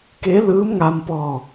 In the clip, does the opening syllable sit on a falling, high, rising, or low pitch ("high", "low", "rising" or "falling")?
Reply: rising